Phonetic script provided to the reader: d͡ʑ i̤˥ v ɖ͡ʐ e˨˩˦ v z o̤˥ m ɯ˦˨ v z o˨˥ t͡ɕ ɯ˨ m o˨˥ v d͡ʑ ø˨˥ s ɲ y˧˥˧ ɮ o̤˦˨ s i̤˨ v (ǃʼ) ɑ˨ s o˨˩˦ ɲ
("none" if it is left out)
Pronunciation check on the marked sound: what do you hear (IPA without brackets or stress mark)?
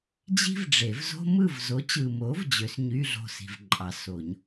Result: ǃʼ